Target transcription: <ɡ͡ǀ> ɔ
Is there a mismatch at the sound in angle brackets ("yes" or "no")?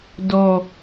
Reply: yes